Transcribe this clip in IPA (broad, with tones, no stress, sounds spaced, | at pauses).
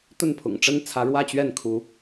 t̪ ə˥˨ n pʰ ʊ̰˨˩ ŋ ʈ͡ʂ ə˦ n t͡sʰ ä˨˦ ɻ w ä˥˨ t͡ɕ ɥ ɛ˥˨ n kʰ u˨˦